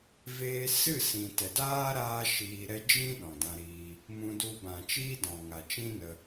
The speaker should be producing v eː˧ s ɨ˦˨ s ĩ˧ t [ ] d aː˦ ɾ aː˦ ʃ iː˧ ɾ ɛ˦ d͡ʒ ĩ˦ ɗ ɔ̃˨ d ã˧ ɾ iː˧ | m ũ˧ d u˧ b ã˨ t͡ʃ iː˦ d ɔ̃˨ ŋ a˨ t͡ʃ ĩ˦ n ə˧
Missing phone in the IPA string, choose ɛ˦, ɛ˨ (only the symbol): ɛ˨